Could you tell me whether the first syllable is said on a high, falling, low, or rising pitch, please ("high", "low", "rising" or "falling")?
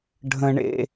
high